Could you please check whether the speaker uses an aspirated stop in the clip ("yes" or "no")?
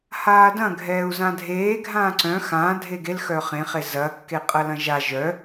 no